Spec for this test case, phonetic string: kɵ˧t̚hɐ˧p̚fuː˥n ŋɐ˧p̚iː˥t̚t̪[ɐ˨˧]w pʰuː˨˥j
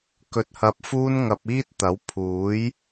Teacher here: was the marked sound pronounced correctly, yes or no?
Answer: no